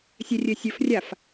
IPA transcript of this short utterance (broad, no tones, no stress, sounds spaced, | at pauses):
sʲ ɛ rʲ ɘ sʲ ɵ f rʲ a f